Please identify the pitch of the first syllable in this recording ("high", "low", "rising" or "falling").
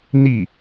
falling